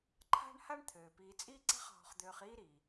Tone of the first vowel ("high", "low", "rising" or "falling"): high